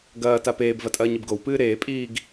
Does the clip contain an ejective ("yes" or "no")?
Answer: yes